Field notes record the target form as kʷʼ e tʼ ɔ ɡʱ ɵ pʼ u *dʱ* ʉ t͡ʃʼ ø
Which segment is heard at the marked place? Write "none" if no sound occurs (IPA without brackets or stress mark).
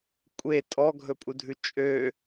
dʱ